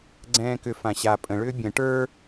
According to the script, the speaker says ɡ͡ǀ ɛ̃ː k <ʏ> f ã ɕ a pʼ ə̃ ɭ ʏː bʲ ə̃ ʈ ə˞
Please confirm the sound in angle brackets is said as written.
yes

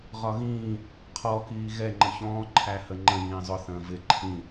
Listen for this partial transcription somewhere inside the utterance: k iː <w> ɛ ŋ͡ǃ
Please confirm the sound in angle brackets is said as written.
no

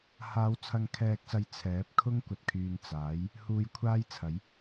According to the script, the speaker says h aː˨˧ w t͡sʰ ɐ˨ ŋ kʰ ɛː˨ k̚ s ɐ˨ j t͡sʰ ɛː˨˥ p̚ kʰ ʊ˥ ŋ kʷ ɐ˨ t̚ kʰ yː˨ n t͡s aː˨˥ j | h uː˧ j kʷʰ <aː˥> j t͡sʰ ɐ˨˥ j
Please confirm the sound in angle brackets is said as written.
yes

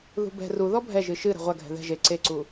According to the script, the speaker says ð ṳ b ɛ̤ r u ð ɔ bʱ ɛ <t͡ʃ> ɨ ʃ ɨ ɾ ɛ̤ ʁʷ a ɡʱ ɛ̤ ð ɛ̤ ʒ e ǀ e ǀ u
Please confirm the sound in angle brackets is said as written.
no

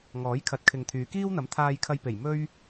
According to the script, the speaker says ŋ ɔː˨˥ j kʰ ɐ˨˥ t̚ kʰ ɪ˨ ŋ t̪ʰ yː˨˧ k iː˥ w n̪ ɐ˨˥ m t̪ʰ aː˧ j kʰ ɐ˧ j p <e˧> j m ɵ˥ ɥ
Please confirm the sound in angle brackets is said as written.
no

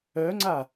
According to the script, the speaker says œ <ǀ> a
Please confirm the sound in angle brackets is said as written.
no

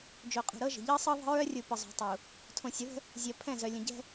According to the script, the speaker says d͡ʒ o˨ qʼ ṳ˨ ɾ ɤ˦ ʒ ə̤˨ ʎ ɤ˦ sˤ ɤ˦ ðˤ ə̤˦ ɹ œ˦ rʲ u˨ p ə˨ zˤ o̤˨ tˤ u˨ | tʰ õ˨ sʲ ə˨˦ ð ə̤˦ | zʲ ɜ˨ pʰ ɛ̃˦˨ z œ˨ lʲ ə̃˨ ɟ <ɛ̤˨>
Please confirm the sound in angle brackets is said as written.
no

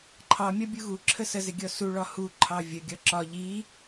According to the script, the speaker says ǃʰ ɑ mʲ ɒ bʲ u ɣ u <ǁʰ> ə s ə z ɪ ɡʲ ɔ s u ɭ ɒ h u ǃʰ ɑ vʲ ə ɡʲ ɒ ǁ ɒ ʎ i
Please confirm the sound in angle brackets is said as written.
yes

